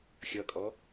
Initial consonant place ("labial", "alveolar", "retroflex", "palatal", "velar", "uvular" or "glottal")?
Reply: velar